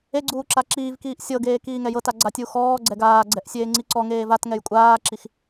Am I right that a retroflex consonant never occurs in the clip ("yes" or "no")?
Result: yes